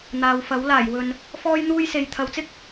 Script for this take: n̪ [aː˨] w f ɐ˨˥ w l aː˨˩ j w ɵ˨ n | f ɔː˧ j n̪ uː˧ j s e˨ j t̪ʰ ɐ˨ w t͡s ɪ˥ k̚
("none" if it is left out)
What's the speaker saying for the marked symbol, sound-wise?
aː˨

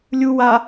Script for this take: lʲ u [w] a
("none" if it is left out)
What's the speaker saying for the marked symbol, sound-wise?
w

